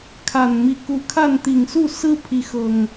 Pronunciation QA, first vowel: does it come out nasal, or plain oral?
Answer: oral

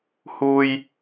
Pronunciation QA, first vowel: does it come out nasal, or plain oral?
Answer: oral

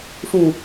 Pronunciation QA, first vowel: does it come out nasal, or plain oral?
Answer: nasal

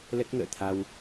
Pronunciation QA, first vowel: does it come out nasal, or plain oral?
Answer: oral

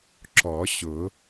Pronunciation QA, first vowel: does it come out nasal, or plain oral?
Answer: oral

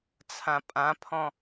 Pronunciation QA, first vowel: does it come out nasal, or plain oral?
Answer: nasal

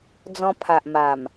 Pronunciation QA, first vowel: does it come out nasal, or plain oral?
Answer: nasal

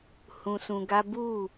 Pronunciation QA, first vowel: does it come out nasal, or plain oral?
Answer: nasal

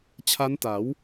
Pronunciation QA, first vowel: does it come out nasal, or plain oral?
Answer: oral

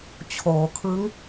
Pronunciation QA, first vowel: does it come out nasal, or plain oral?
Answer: oral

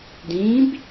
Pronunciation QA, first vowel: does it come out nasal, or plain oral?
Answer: nasal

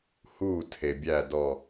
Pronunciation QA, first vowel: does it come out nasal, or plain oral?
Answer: oral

